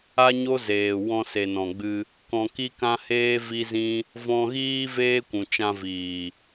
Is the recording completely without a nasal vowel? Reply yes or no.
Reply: no